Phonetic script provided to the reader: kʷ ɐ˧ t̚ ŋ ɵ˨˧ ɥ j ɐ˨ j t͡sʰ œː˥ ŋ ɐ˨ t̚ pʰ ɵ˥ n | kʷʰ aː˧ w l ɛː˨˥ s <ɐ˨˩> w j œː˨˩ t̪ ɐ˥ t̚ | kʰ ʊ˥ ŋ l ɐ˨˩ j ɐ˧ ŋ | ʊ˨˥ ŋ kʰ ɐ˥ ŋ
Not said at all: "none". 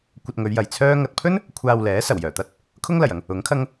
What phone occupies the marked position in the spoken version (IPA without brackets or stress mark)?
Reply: ɐ˨˩